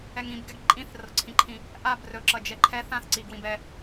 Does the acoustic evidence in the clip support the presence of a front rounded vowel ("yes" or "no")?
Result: no